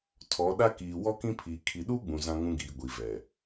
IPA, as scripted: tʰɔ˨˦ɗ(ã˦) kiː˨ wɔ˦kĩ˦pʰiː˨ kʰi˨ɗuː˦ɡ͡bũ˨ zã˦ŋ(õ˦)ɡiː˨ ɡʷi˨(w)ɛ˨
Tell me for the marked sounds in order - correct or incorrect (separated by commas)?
incorrect, incorrect, incorrect